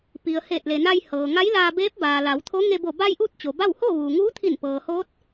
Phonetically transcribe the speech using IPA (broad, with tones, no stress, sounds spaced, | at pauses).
p i˩ ə̯ h eː˧˩ t̚ l e˩ n a˧ j h ɤː˩ ŋ a˧˥ j l aː˧ b eː˧˥ p̚ b aː˩ l a˩˧ w t̪ʰ o˧˥ ŋ e˧ b o˧˩ b a˧ j ʔ uː˥˨ t̚ t͡ɕ o˩ b a˥˨ w h oː˥˨ ʋ uː˩ ŋ uː˧˥ t̪ʰ i˧˩ n p ɤː˩ h oː˧˥ t̚